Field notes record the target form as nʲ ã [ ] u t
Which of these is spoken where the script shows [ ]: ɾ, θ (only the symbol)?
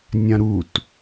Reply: ɾ